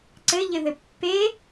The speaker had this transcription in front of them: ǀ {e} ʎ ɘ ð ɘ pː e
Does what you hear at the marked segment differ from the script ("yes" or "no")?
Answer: yes